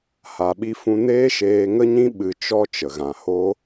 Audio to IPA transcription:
ha˨ɓi˧fũ˧ neː˦ʃeː˧ŋə˦ɲĩ˦ ɓɨ˧t͡ʃɔ˦ t͡ʃə˨ɣã˨ho˦

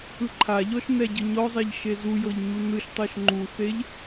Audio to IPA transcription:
ɯǃʰaʎɔʃ nɛɟɯɲɔzˤeʎ ʃezujɤʎ ɲunɯʃtˤɤʃ ŋ͡ǃuθeʎ

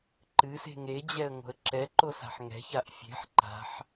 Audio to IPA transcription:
ǃɨse̤ŋ ed͡ʑɛə̯ ŋo̤ə̯ǁɛǃo sa̤ħŋɛ̤çaʔ fʲe̤ħ ǃa̤ħ

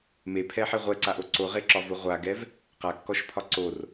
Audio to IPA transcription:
mepʰɛħe ʁʷɛǀaʔo ǀoʁeǁɒvo ʁʷaɡɛv | qakːɔʃpʰɒ ǀor

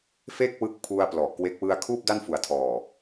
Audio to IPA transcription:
fe˥˩k̚ wɯ˦˥k̚pʰu˧a̯ plɔ˨˩ʔkwe˦˥k̚ wɯ˧a̯kʰuː˥˩p̚ da˥˩nfu˨˩a̯tʰɔː˨˩

